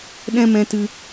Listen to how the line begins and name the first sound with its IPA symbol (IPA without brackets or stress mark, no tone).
ɗ